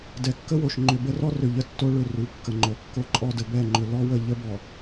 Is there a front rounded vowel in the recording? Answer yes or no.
yes